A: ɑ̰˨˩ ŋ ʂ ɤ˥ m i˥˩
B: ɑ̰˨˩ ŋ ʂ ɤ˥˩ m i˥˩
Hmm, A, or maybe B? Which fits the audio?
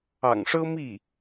A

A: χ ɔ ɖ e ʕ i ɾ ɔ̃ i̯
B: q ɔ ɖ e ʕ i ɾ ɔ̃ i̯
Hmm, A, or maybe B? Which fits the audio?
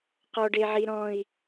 B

